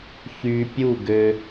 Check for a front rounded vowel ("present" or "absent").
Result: present